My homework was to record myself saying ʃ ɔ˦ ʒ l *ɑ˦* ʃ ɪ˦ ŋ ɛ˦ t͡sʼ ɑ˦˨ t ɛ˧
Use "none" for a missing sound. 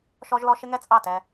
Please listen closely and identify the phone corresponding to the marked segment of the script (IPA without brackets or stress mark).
ɔ˦